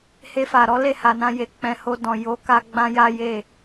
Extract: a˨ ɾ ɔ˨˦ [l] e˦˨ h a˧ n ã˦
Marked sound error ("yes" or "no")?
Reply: no